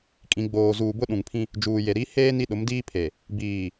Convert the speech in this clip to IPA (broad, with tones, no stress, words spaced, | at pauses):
kʼĩ˨ɡ͡boː˨zuː˨ bʊ˦ɗũ˨ŋpʰĩ˦ | d͡ʒuː˨je˨ ɾi˨˦ heː˦ ni˦ɗʊ˨˦mdiː˦pʰe˨ | biː˨